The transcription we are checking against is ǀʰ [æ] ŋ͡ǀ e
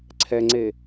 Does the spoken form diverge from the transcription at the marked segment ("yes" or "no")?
yes